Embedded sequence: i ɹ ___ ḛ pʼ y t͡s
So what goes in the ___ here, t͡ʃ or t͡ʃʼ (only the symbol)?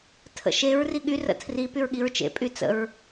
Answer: t͡ʃ